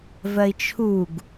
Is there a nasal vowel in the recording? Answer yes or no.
no